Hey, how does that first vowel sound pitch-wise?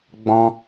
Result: high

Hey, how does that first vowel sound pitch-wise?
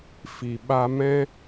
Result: low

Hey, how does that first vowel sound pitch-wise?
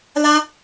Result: high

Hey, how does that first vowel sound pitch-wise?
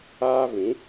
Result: high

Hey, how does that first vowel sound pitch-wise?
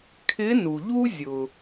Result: rising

